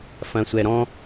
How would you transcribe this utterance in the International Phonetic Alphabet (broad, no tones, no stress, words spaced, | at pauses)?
fɐ̃sʷɛɾɔ̃